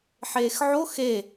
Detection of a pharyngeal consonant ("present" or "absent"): present